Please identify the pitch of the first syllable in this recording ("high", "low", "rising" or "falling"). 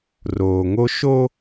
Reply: low